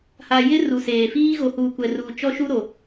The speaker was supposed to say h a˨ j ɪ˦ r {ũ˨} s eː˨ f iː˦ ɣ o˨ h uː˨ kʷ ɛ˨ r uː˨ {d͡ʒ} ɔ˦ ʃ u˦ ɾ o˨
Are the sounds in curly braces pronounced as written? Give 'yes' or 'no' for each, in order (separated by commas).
no, no